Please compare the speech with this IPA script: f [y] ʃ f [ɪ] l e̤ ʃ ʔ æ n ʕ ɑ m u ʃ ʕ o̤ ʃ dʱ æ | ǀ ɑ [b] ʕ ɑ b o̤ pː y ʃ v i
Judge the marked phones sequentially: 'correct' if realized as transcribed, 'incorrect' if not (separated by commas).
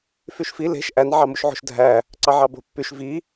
correct, incorrect, incorrect